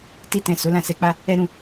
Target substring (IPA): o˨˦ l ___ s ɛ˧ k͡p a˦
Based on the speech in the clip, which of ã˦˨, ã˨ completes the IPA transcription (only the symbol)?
ã˦˨